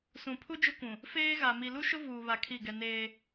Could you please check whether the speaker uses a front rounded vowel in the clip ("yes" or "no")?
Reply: no